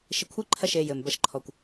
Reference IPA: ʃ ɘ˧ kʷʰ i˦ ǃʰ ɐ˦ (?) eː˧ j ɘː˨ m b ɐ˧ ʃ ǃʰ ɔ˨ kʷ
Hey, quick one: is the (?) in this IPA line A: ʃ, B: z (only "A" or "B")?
A